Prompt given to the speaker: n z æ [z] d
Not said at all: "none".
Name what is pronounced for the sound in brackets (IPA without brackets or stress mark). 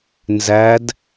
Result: none